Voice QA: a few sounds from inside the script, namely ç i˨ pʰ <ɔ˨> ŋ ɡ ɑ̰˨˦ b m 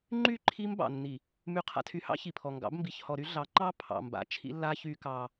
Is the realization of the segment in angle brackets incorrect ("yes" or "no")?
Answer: no